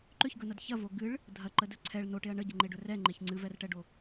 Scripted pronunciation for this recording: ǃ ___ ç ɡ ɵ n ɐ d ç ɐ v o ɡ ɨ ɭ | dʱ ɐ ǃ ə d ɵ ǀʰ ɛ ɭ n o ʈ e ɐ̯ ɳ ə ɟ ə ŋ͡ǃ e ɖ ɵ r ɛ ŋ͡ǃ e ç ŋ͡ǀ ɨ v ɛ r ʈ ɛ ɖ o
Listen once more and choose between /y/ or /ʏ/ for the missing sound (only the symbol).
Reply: ʏ